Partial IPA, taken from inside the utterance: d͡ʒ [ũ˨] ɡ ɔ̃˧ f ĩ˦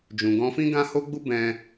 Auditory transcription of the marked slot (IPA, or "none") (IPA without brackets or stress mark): ũ˨